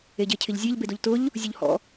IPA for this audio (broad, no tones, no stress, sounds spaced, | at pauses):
e ɟ e cʰ ɪ ʎ zʲ e ʎ b e d o ʎ t ʊ ʎ | zʲ u ʎ h ɔ̰